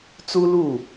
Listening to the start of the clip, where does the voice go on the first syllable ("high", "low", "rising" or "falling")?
high